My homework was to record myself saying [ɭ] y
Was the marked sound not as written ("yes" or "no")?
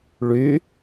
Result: no